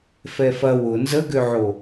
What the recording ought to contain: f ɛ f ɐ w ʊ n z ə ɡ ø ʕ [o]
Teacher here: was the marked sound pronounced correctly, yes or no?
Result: yes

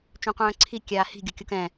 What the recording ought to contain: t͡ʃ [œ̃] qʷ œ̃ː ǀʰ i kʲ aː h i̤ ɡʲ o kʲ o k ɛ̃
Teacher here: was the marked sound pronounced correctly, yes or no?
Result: yes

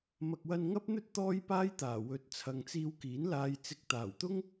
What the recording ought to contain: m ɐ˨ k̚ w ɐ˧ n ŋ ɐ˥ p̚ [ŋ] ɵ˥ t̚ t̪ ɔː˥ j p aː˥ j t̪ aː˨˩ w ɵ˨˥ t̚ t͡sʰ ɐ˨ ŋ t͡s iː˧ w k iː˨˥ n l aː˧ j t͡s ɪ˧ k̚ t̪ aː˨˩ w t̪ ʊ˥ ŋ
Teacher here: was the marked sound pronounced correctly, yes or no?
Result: no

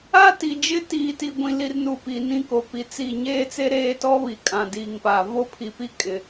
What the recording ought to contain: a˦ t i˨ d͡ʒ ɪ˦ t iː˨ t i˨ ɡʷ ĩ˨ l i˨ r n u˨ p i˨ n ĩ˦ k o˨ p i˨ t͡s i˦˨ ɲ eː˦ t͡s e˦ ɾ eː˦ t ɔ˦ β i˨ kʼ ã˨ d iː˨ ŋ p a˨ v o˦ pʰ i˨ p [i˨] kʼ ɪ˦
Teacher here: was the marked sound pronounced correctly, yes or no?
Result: no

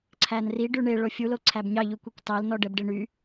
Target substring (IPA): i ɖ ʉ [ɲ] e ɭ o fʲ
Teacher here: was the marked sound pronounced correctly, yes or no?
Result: no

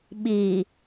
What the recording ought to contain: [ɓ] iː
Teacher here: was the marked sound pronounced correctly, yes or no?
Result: yes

